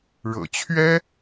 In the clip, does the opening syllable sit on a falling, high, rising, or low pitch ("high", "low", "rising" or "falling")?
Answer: low